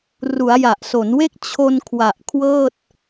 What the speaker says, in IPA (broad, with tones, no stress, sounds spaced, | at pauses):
r u˩˦ a̯ j a˨˩ ʔ s o˩˦ n w e˥˩ k̚ t͡ɕʰ o˧ n kʰ w a˨˩ ʔ kʰ w ɤː˥˩ t̚